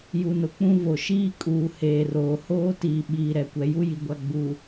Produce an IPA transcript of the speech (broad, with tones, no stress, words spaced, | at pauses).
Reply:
ju˨nʊ˨k͡pũ˦ vo˨ʃiː˦kʼuː˨ heː˨roː˨ hoː˦ tiː˨ ɓiː˨ɾɛ˨kʷɛ˨ ju˦ji˨ɡʷa˨ ɡ͡bu˨